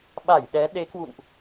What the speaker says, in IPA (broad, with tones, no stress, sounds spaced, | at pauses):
ɓ a˧˩ j ɗ ɛ˨˦ ɗ e˨˦ k w ṵ˧˨ n ʔ